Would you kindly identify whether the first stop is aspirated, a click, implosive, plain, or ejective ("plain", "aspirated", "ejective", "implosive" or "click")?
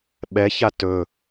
implosive